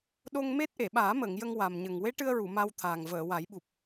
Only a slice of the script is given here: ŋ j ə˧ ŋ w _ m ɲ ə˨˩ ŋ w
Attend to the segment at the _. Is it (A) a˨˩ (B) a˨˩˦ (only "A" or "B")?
A